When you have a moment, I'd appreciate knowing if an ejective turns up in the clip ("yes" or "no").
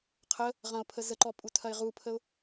yes